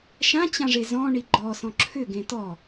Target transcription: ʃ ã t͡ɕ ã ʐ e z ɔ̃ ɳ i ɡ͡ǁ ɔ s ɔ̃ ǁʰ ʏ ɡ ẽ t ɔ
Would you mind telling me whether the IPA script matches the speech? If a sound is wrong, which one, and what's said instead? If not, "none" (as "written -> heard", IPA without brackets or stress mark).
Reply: ɡ͡ǁ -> ɡ͡ǃ